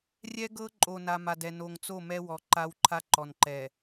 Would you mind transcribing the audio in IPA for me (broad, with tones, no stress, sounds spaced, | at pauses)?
rʲ ɛ˦ ɡ ɤ˦ ǃʼ o˨ n a˨ m a˨ d ɛ˨ n o˨ ŋ t͡s o˦˨ m ɛ˦ w ɔ˨ ǃ a˦ w ǃʰ a˦ ǃ ɔ˨ n ǃ ɛ˨